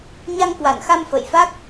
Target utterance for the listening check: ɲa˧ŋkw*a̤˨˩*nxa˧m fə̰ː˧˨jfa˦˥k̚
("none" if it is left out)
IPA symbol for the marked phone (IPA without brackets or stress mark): a˧˩